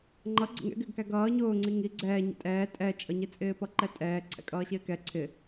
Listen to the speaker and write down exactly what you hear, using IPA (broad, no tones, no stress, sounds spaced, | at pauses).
ŋ͡ǃ ʌ ɡ͡ǀ ə̰ ŋ ɛ̰ ɡ ɪː ɡ k æ ɡ ʌː ɲ ʊː ŋ͡ǀ i ŋ i ɡ͡ǀ ɛː ɲ ɛ̰ tʼ ɛː tʼ ɛ t͡ʃʼ ʌ ɲ i t͡sʼ ɪː p ʌ ǃ ɛ tʼ ɛː ǀʰ ɛ̰ kʼ ʌː ɕ ɪː k ɛ ǀʰ ɪ